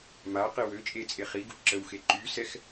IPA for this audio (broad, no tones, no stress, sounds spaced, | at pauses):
m a q i w ø t͡ʃʼ e t͡sʼ e χ i ɡ u ǁ ə w x e ǃ y s ɛ x